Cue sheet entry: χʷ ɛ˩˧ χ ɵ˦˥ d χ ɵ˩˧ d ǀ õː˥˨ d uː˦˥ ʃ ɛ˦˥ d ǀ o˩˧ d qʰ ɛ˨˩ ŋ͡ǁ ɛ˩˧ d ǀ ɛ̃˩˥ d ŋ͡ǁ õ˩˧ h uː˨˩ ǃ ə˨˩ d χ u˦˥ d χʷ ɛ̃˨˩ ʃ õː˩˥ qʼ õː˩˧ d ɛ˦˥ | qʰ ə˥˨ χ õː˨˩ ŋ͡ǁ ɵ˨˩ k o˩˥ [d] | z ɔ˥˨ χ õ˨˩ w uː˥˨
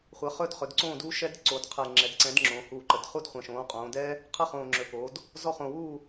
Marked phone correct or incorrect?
correct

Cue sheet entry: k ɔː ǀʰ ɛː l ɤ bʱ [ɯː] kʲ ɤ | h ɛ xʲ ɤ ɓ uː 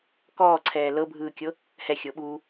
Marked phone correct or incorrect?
correct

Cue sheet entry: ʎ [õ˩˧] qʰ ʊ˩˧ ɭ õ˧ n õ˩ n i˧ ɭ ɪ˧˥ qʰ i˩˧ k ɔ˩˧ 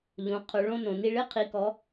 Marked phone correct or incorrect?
correct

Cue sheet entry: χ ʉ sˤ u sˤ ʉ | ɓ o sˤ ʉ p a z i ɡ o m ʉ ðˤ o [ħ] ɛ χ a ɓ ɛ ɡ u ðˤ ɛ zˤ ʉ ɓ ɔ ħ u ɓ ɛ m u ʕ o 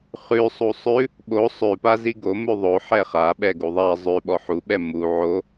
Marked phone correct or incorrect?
correct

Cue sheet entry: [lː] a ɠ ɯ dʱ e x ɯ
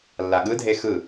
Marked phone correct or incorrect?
correct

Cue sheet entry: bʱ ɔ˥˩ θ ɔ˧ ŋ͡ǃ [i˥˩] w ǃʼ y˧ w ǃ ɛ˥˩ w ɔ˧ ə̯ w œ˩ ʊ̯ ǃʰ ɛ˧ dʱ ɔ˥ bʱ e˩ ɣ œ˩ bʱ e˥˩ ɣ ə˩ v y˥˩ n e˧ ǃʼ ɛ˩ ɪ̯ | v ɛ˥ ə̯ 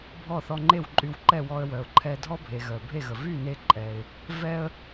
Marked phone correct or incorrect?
incorrect: e˥˩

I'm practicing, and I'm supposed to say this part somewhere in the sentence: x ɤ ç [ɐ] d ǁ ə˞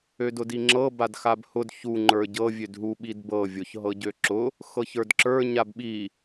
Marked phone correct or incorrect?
incorrect: ə˞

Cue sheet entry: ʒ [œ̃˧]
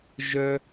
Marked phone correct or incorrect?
incorrect: œ˧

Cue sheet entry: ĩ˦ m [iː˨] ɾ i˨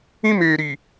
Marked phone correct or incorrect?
incorrect: eː˨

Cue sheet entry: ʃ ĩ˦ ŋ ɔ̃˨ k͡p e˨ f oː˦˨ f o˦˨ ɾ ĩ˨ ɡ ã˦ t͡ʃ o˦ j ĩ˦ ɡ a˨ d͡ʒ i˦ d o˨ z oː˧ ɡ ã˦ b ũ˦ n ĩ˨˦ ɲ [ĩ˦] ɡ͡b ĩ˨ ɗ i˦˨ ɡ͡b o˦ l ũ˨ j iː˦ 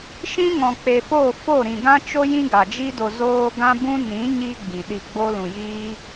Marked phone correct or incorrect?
incorrect: i˦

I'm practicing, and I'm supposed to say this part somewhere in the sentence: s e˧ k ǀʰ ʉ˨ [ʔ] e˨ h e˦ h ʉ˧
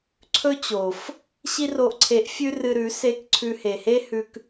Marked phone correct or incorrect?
incorrect: h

